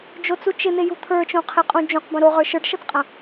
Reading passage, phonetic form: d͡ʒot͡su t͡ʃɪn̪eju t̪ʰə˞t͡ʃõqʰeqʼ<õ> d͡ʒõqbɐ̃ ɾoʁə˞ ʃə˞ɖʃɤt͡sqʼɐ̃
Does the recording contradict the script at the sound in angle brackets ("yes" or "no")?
yes